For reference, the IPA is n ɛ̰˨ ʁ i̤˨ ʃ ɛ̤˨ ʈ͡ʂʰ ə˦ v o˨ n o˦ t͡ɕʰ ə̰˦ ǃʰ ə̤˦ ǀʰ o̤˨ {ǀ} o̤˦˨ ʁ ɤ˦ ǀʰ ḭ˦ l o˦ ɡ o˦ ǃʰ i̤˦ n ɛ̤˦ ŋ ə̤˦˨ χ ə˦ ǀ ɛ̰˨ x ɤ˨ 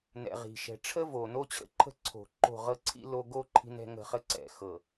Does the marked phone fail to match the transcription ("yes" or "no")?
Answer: yes